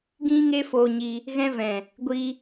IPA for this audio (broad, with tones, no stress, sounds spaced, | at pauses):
ɡ ĩ˦ ŋ e˦ f oː˧ ɲ i˧ | ɣ ɛ̃˦ v ɛ̃˨ | ɡʷ i˦